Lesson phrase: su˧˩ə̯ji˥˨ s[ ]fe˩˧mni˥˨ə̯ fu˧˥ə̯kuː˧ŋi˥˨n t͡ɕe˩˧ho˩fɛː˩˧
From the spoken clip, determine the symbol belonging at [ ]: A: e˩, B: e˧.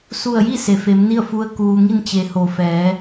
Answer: A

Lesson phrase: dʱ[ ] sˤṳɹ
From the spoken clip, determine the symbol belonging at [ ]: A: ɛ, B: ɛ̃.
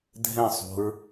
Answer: B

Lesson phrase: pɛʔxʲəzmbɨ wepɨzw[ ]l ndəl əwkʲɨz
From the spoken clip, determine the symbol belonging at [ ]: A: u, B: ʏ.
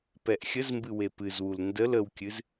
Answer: A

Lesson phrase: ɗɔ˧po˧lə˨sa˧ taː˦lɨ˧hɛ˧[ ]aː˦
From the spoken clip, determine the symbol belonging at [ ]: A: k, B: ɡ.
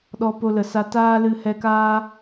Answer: A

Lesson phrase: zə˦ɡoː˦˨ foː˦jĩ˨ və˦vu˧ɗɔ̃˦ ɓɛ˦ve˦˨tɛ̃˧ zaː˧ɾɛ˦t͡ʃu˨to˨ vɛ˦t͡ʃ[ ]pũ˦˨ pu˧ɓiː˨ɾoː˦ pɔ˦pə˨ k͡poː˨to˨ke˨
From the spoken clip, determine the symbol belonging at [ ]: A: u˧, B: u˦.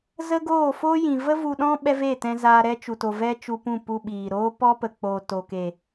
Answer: A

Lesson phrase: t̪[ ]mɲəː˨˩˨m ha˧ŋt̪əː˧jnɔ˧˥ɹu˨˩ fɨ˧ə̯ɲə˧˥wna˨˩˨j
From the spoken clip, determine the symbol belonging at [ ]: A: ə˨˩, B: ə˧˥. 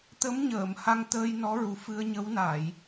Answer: B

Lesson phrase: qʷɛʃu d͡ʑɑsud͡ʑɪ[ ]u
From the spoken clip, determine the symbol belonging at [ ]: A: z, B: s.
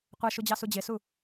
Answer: B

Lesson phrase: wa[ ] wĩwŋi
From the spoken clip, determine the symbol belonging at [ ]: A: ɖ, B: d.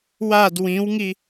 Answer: B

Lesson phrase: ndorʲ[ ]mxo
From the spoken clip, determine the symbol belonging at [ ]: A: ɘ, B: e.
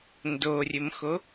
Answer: A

